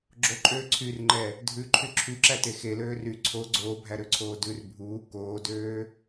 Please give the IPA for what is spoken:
ɡ͡ǁoǃʼøː ǀʰyrŋ͡ǃɛ | dʱʉǃʰy ǁʰyǁæte xeløː ry ǀʰo ɡ͡ǀoːbʱæɾøǀʰoː dʉr bʱuː koːdøː

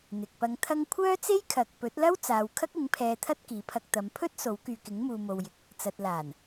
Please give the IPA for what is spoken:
n̪ɪ˨k̚pɐ˧ŋt̪ʰɐ˥ŋ kʷʰœː˥t͡se˥jkʰɐ˨k̚ pɵ˨˥t̚lɐ˥wt͡saː˨w kʰɐ˥k̚ɪ˨˥ŋ pʰɛː˧t̪ʰɐ˥t̚kiː˨˥pʰɐ˧k̚ t̪ɐ˨˧mpʰɵ˥t̚ so˨˥wkyː˨kɪ˨˥ŋmuː˨ mo˨wjɪ˨k̚ | t͡sɐ˨t̚laː˨˩n

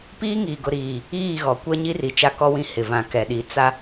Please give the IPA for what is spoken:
piː˦ŋiː˨ɡʊ˨ ɾiː˨ | iː˦˨ɣɔ˨˦kʷɛ˦ ɲi˦ri˨t͡ʃa˦˨kɔ˦ wĩ˦hɪ˨ vã˨kɛ˨ɗi˨˦ t͡sa˦

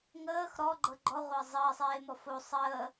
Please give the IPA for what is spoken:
ŋəːx ɾɔɡ͡ǃɤ ɡ͡ǃɔʁʷəː zˤəːsˤeːmɔ fo sˤəː

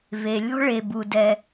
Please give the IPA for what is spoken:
ve˩lʲɔ̤˥ ɭe˩bu˩ dɛ˩

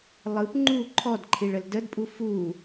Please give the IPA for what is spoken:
lˠɯp ŋ͡ǃu ǃʰɔdǃʰiɭəl dədpʼu fu

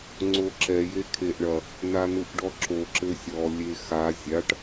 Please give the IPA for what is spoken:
ŋ͡ǀoǁɛ jekʰeʔɳɐ | nanuʔɖɔǁo ǁɘsʲɔ lʲexa zʲaʈ

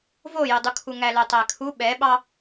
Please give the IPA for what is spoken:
vojodˤukʰu ŋælœtˤækʰu ɓɛɓɑ

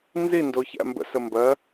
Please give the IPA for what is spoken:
nzindo çæ̰mbə̰sə mbɜ

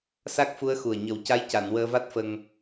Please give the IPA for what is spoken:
sa˦˥k̚fu˧˥ə̯ xu˨˩ə̯ɲə˨˩˦w ca˧˥j ca˨˩˨n wəː˧va˦˥t̚ fə˧ŋ

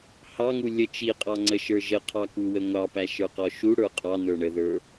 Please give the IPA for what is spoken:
hɑŋu lʲə t͡ʃiqʼɑŋ͡ǀəʃə˞ ʒəqʰɑkuwə ŋʷɑpæʃə˞qɔ ʃuɽə˞ qʼɑnə˞ ɳəðə˞

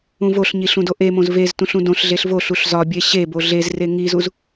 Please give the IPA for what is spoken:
ũvoɬɲi ɬũdoʔemõz veztũɬ ũdõɬɮeɬ voɬuɬ zɒbʲe ɕebo ɮezre ŋizuz

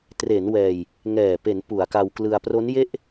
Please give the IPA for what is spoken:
tre˩˦n wɛː˧j | ŋɛː˨˩pe˩˦n pu˩˦a̯ka˧wklɯ˧a̯ pro˦˥nje˥˩ʔ

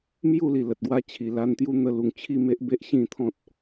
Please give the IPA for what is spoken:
mju˥˧li˨˩ lə˨t̚ɡwa˦t͡ɕʰi˨˩ la˧nt̪ju˦ n̪ə˧lu˨˩ŋt͡ɕʰi˥˧me˦ʔ be˦ʔɕĩ˥˧ t̪ʰɔ̃˦t̚

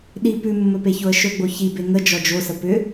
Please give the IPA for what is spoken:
ɗi pʉmːɵpeçoə̯ ʃɵɡ͡bo çibe ŋə d͡ʒɔd͡ʒosə pʏ

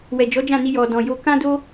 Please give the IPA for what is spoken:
wɛ˨d͡ʒɔ˨˦d͡ʒã˦˨ni˧ jɔ˨dɔ̃˨jo˧ kã˦do˦

